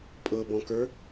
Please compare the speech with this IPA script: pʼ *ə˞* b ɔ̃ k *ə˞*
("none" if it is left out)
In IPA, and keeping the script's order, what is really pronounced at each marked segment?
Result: ɤ, ə˞

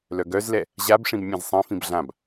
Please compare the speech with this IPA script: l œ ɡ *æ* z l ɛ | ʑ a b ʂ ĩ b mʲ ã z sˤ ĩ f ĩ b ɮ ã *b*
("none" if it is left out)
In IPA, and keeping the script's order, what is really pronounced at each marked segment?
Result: œ, b

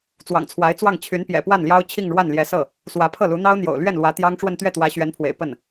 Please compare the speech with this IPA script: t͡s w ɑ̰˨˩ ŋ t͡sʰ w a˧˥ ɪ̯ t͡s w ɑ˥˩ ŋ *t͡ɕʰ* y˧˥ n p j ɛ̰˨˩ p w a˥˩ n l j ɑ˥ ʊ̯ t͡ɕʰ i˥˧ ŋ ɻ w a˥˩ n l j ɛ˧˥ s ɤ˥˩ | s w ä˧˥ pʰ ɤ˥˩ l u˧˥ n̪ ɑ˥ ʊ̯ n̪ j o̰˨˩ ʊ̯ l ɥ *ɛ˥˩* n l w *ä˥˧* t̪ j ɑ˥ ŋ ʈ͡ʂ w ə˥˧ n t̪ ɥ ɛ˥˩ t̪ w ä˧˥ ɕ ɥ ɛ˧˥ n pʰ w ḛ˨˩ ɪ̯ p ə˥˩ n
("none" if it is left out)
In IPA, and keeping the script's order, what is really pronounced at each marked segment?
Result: t͡ɕʰ, ɛ˥˩, ä˧˥

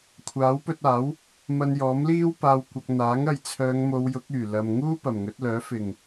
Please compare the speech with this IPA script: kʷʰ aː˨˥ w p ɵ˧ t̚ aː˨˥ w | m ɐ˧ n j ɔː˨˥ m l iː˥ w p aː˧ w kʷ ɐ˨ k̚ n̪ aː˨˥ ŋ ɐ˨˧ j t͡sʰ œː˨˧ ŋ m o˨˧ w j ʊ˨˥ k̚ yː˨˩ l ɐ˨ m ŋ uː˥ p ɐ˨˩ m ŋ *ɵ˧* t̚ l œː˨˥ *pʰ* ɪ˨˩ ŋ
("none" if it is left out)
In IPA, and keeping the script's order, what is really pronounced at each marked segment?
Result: ɵ˨˥, f

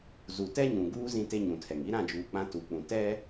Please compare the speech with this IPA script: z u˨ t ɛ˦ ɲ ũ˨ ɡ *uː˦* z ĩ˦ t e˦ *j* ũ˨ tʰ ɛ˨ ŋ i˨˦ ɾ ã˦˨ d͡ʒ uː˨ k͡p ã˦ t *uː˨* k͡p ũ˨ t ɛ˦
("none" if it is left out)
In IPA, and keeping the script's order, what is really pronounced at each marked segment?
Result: uː˦, ɲ, u˨

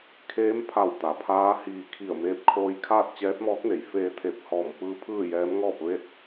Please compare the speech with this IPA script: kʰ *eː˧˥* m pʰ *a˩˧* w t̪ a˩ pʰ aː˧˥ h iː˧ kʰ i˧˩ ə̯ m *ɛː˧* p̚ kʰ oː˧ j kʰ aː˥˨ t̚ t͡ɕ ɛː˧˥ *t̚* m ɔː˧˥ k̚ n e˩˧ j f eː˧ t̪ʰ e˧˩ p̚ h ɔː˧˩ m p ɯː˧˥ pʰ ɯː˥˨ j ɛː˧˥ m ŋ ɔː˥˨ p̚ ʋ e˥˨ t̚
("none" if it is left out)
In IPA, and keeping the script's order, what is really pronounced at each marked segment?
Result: eː˧˥, a˧˩, eː˧, t̚

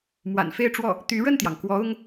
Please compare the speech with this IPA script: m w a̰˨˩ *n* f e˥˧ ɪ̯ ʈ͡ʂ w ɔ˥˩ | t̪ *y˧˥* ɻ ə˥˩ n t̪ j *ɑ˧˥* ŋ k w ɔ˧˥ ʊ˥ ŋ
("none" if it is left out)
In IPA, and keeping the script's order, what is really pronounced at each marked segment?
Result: n, y˧˥, ɑ˩

